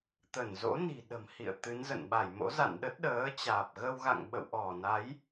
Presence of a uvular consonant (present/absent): absent